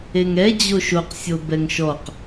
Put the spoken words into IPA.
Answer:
e ŋ ɛ d͡ʑ o ʃ o q sʲ o b ɛ ŋ ʃ ɔ q

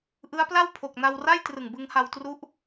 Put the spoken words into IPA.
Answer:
ʔ ɯ˦˥ a̯ p l a˥˩ w pʰ o˨˩ k̚ n a˧ w r a˥˩ j t r ɯ˨˩ ŋ b ɯ˧ ŋ h a˧ w t r u˦˥ ʔ

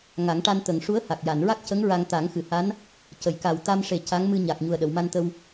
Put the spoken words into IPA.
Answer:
ŋ a˨˩˦ ŋ ʈ a˧ n t̪ ə˨˩ ŋ ʂ u˧˥ ə̯ h a˨˩ k̚ j a˨˩˨ n ɹ a˦˥ k̚ c ə˧˥ ŋ ɹ a˧ ŋ t̪ a˨˩˦ ŋ x ɨ˨˩˨ h a˧˥ n | c ə˨˩˦ j k a˨˩ w t̪ a˧ m ʂ e˨˩ c a˧˥ ŋ m ɨ˧ ɲ a˨˩ k̚ ɲ u˨˩ ə̯ ɗ ə˨˩˨ w m a˧ n t̪ ə˧ w

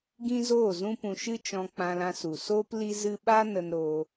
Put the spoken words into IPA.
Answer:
ɡ ĩ˦ z oː˦˨ z ũ˦ p ũ˧ ʃ ɨ˦ t͡ʃ ɔ̃˧ k͡p ã˧ l ã˧ s u˨ s oː˦ p l i˦ z ɨ˦ ɓ a˦ n ə˧ n ɾ oː˧

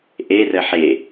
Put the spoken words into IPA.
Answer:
ʔ e r ə ħ e

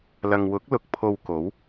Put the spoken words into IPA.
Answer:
l ɐ˨ ŋ w ʊ˨˥ k̚ l ʊ˧ k̚ pʰ o˧ w k o˨˥ w

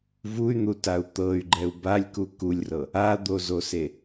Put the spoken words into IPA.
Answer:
v u y̯ n̪ u t a u̯ t̪ ɤ y̯ ɡ͡ǃ ɛ u̯ b a lʲ k u k u lʲ r ɤ | a d̪ o z o s e

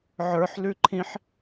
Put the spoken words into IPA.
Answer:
ʕ ə˞ ħ l ʉ ǃʰ ĩ ħ

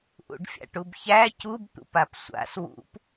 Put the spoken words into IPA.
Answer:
ʔ ṵ ɖ fʲ a̰ ʈ u b ç æ c u b t̪ ṵ p a p sʷ a̰ s w ṵ p

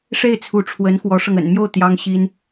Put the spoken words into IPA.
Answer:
ʂ e˥˩ ɪ̯ t͡sʰ u˧˥ ʈ͡ʂʰ w ə˧˥ n x w ɔ˧˥ ʂ ɤ˧ ŋ ə̰˨˩ n m j o˥˩ ʊ̯ t̪ j ɑ˥ ŋ ɕ i˥ n

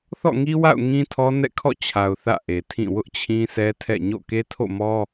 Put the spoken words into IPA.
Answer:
θ ɔ̰˦˨ ŋ i˦ w a̰˦˨ ʊ̯ ŋ ĩ˦ tʰ ɔ˦ n ɛ̰˦˨ kʰ ɔ̰˦˨ t͡ɕʰ a˨ ʊ̯ θ ä̰˦˨ ʔ e˨ tʰ ĩ˦˨ w ʊ˦ ʔ t͡ɕʰ ĩ˦ sʰ ɛ˦ tʰ ɛ̰˦˨ ɲ o̰˦˨ k e˦ tʰ o̰˦˨ m ɔ˦

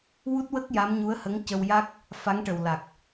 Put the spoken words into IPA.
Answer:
w u˦˥ t̚ w ə˦˥ k̚ j a˧˥ m ɲ u˧˥ ə̯ h ə˧˥ ŋ c ə˧ w j a˦˥ k̚ | f a˧˥ ŋ ʈ ə˨˩ w l a˨˩ k̚

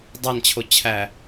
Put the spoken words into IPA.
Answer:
dˤ æ n t͡ɕʰ o t͡ɕʰ æ

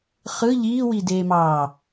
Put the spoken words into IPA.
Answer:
χ ɯ ʎ iː w i d eː m ɑː

